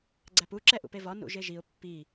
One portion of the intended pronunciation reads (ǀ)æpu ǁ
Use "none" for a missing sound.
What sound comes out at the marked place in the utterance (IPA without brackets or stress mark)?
ɡ͡ǀ